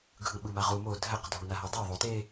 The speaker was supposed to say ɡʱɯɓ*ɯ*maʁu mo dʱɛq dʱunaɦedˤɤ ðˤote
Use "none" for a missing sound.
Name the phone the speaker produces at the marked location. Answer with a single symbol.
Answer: ɯ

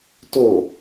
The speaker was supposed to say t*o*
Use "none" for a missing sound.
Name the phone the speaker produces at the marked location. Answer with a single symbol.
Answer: o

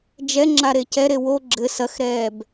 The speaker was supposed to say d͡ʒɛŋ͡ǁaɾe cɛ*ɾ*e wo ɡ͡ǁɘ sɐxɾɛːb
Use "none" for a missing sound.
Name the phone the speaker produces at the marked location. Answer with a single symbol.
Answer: ɾ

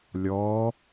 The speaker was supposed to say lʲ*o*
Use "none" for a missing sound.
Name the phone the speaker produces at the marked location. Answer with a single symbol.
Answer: ɔ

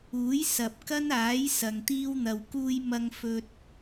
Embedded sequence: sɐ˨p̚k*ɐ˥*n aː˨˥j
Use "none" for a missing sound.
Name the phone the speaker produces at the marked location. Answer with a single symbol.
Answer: ɐ˥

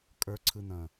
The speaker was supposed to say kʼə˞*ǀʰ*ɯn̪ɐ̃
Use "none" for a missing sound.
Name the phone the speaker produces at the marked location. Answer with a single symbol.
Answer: ǀʰ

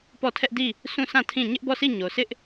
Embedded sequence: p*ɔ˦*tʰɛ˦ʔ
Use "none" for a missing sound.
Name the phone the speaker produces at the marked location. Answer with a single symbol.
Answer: ɔ˦˨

